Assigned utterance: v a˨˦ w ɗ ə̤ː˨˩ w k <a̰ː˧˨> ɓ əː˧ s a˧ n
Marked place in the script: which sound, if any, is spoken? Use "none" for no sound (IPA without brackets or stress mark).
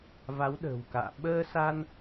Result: a̰ː˧˨